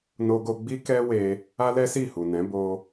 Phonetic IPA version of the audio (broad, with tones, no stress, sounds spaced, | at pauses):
n o˧ ɡ o˧ ɡ͡b i˦ k ɛ˦ w e˧ | a˦ l ɛ˦ s i˦˨ h u˨ n ɛ̃˨˦ b o˧